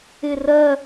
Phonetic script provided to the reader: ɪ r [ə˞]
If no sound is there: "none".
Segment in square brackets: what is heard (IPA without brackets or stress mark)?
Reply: ɜ